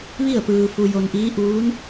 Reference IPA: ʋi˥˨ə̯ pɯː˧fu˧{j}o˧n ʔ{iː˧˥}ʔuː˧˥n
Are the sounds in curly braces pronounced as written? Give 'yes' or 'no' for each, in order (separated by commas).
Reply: yes, yes